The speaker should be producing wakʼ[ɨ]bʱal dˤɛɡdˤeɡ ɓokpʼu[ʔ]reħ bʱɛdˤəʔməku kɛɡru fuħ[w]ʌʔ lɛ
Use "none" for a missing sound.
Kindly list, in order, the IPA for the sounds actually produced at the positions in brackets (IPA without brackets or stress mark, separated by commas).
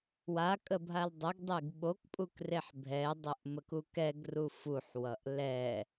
ə, k, w